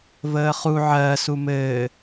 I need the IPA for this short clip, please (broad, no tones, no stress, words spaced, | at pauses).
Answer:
vəːχu ʕɜ sumɘː